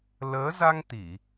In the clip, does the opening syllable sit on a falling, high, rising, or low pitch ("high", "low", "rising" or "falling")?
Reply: rising